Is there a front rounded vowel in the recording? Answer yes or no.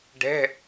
no